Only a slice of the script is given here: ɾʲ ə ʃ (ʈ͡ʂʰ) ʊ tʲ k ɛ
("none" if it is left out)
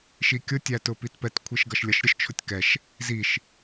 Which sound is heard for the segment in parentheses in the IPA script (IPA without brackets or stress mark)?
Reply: t͡ʃʰ